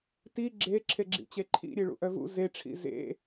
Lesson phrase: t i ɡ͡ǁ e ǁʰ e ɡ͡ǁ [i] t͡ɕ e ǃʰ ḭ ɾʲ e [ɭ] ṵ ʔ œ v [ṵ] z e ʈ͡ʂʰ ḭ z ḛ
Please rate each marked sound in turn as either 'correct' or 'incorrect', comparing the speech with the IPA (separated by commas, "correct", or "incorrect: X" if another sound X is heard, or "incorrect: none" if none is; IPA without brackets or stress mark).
incorrect: ḭ, correct, correct